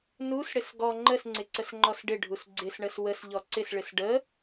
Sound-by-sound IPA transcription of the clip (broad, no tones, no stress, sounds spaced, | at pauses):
n u s ɽ ɪ s ɡ ɔ ŋ͡ǃ ə s ŋ͡ǀ ɪ ǀ ə s ŋ͡ǃ ɔ s ɖ ɪ ɖʱ u s ɡ͡ǀ ɪ s ɳ ə s w ə s ʎ ɔ ǀ ɪ s ɭ ɪ s ɖ ə